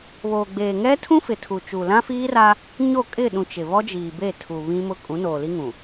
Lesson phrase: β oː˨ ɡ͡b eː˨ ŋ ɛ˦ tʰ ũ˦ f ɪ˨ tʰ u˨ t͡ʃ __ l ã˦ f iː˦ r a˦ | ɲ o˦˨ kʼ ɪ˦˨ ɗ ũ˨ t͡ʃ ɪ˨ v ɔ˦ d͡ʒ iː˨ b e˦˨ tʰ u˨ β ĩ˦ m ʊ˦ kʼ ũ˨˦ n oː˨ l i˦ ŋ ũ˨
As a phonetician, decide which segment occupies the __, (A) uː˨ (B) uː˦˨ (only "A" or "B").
A